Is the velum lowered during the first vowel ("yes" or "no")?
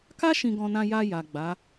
no